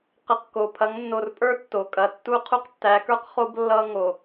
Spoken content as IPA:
qə˨q ko˨ pʰɐ˨˦ŋnːo˨rpʼə˞˦ tːo˨kʼɐ˨ tːu˦˨qʰu˦qtːæ˨˦kə˞˦q χo˦b lːʌ˦ŋo˨

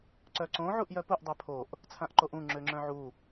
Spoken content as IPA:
ǀœǀõ ʕuʔjœpuʔ dˤøpʰoʔ | t͡sʰãʔǃoʔũ ŋ͡ǁøŋ͡ǁœ̃ʕu

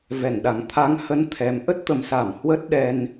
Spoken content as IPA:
vɛ˧˩nɗa˨˩ŋ t̪ʰa˨˦ŋhə˨˦n t̪ʰɛ˨˦m ʔə˦˥t̚t̪ə˨˩msa˧˩m hwə˦˥t̚ɗɛ˧n

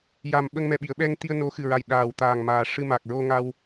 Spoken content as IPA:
ja˨˩m ɓə˧ŋmɛ˨˩ɓi˨˩˨ə̯ɓɛ˧ŋ t̪i˧ə̯no˧˥xɨ˨˩ɹa˨˩j ɗaː˨˩wt̪aː˨˩ŋ maː˨˩ʂɨ˧ ma˨˩k̚ɹo˧ŋa˧w

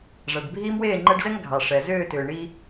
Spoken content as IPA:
ʐæ˨ɖbʱiː˦m weː˦˨ŋ͡ǃɛ˧ɖzɛ˦ŋ ɡʱɑ˨ ʂɛ˨ zʏː˦˨tʏː˨ ɳi˦

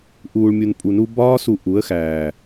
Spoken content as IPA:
ʔuː˨ɭmʲu˨n pʼu˨nu˧ bɒː˦su˧ ʔu˨˦ə̯ xæː˨

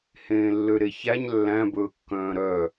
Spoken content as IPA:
hẽːlːøɾeçæɲ lːæ̃ bɵːkːœ̃ːɾœ

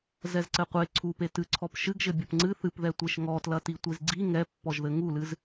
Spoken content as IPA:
zɛzǀɘqʷe ǀʰupe tɨǀʰɔp ʃɨɡʒɘ bʲɐpŋ͡ǀɨ θɨpðɛtʷeʃ ŋɔtlɐti tʷizɡ͡ǀi ŋɛpːɔʒðɘ ŋulɨz

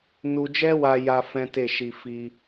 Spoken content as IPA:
nu˧d͡ʒɛ˦wa˧ja˧ fɛ̃˦te˦˨ʃi˧ fi˧

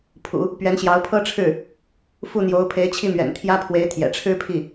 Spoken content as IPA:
pʰṵ˨˩˦ | pɥɛ˧˥nɕjɑ˧˥ʊ̯pʰɤ˥ʈ͡ʂʰɻ̩˥˩ | fu˥˩n̪jo˧˥ʊ̯ pʰe˧˥ɪ̯t͡ɕʰi˥˩mɥɛ̰˨˩n t̪ʰjä˥pʰwe˧˥ɪ̯ t̪ʰjɛ̰˨˩ʈ͡ʂʰɻ̩˥pʰi˥˩

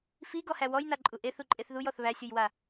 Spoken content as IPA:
fiɡɔhæ wɔjnaǃʼu ʔeθuǃʼeθ ðujɔθ βæsʲujwa

